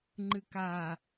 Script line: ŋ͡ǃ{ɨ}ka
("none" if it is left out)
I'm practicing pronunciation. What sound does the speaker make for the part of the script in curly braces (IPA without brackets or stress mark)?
ɨ